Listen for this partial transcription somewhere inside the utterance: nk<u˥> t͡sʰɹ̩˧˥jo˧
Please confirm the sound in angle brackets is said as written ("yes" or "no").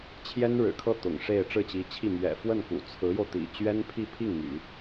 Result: no